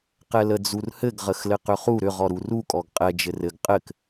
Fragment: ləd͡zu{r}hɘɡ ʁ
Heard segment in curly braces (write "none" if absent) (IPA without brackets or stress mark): r